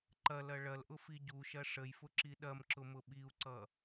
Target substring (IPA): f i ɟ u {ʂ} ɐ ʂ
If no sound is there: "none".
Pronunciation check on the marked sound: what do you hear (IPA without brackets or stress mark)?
ʃ